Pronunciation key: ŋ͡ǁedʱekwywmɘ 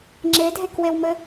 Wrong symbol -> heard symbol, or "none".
y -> e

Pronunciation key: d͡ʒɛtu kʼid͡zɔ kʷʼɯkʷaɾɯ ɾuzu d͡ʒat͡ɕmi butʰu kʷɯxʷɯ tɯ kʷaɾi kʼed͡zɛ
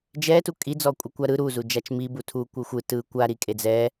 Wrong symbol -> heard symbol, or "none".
t͡ɕ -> t͡ʃ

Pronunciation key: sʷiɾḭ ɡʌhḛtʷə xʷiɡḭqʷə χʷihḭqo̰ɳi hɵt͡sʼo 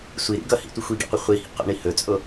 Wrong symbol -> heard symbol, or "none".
ḛ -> ḭ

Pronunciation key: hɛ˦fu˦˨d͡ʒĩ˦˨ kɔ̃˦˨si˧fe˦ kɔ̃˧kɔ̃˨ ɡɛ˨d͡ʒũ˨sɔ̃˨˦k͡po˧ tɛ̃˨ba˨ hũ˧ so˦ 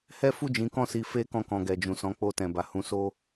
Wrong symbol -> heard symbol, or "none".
ĩ˦˨ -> ĩ˨˦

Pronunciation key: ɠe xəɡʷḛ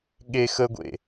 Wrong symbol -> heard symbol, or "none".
none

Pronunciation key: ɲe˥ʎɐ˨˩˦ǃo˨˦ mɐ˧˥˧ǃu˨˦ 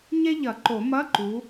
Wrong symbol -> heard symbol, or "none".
o˨˦ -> o˨˩˦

